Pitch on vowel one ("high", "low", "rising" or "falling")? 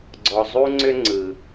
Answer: low